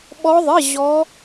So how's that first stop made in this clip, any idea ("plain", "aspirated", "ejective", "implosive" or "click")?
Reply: implosive